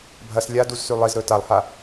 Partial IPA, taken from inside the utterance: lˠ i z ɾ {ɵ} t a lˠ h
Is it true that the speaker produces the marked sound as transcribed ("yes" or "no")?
yes